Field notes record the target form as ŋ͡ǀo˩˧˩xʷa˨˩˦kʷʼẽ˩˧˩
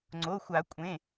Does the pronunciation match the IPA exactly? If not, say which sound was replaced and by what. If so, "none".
none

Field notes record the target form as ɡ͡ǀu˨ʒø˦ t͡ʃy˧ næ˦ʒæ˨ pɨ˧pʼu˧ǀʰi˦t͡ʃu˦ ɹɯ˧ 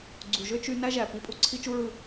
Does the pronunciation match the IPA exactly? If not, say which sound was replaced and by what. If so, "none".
ɨ˧ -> i˧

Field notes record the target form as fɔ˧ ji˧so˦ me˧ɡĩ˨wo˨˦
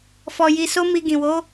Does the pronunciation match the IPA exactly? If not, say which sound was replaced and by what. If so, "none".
e˧ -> i˧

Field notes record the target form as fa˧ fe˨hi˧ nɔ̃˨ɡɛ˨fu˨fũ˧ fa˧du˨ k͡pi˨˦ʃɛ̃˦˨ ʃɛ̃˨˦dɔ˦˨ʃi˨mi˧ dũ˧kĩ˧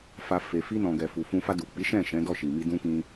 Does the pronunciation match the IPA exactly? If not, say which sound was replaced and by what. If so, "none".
h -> f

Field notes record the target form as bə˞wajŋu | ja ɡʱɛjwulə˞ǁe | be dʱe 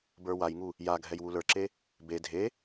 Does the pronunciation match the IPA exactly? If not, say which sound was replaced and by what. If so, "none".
none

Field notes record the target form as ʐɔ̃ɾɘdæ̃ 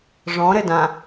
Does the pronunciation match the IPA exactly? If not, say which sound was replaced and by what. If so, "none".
æ̃ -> ã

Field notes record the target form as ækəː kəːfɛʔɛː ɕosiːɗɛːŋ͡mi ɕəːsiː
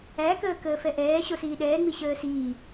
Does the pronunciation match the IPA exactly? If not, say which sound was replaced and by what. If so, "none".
none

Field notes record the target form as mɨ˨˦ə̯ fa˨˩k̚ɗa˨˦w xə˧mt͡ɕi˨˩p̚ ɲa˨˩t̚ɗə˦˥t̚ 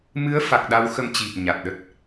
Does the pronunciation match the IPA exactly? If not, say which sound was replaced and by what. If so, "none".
none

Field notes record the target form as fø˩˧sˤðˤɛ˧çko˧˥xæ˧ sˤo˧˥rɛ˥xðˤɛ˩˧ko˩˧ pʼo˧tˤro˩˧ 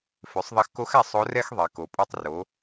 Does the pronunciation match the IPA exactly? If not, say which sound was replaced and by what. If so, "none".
ç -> x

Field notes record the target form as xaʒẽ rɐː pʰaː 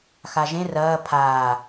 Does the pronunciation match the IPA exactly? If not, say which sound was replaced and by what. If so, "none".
none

